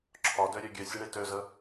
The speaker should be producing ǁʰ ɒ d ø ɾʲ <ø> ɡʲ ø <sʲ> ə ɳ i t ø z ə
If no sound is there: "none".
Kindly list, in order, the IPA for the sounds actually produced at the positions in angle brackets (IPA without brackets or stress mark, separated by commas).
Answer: ø, sʲ